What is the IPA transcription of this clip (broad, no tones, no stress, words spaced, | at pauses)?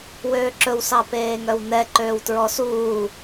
wøːǁɵw sɑpeːŋœwnɛ ǃøːwtɹɔsuː